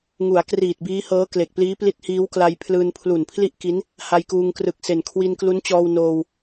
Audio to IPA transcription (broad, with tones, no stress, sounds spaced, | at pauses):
ŋ u˩˦ a̯ k r iː˨˩ t̚ b iː˦˥ h ɤː˦˥ k l e˨˩ k̚ p l iː˦˥ p l i˦˥ t̚ h iː˦˥ w k l a˧ j pʰ l ɯː˧ n pʰ l u˨˩ n pʰ l i˥˩ ʔ k i˦˥ n | h a˧ j k uː˧ ŋ k r ɯ˨˩ k̚ s e˨˩ n kʰ w i˧ n k l u˦˥ n t͡ɕ ɔː˧ w n oː˧ w